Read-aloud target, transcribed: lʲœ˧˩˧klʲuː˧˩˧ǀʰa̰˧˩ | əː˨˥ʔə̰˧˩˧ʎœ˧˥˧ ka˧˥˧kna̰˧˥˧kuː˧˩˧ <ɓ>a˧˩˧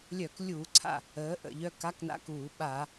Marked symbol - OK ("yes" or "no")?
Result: yes